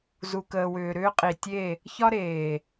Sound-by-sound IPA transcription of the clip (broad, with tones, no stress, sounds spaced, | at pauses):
z u˨ k əː˨ w ʏː˨ ɾ ʏː˦ qʼ i˨ tʲ e˦˨ | ç ɒ˦ ɾ eː˨